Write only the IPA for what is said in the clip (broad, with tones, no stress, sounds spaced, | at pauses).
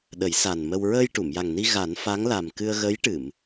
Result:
ɗ ə˨˩˦ j s a˨˩ n m ə˧ w ɹ əː˧ j ʈ u˨˩˨ m j a˨˩ ŋ n i˧ ɣ a˨˩˦ n f a˧˥ ŋ l a˨˩ m k ɨ˧ ə̯ ɣ ə˧˥ j ʈ ɨ˨˩˨ m